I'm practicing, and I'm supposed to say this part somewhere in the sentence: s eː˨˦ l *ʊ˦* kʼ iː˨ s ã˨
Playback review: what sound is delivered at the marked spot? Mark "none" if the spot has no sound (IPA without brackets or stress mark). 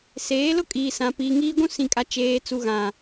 ʊ˦